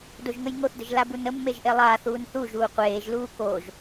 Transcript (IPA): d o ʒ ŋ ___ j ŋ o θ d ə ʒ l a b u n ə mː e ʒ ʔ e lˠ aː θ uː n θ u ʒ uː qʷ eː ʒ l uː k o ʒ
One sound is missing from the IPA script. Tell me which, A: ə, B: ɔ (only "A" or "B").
A